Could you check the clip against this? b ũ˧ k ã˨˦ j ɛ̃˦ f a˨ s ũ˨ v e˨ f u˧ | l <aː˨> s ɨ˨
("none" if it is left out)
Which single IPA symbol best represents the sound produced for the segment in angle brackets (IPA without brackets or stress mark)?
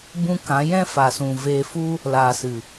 aː˨